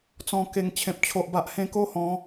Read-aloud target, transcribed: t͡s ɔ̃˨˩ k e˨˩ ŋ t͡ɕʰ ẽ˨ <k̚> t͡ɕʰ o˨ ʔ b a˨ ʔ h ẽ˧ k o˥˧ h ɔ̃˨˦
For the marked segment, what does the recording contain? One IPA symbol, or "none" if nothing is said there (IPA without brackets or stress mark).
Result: p̚